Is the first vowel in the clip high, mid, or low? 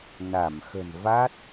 low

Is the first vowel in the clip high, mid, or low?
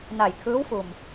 low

